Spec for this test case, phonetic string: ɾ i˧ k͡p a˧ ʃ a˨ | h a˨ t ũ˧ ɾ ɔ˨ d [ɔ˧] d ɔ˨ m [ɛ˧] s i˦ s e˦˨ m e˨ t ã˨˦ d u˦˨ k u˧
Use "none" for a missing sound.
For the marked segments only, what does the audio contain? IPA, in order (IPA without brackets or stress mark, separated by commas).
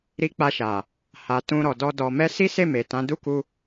ɔ˧, ɛ˧